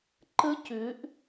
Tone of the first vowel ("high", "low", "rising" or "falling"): high